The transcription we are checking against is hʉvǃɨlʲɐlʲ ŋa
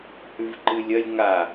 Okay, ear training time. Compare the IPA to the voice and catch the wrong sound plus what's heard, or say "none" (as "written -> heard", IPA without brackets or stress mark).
none